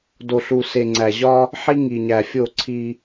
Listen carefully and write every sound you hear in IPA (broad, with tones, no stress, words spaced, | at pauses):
do˨ɬu˨ se˨ŋ͡ǀæ˨ʑɒ˦ | ħi˦ŋi˨ɲæ˨ fʲo˦˨ǀʰi˦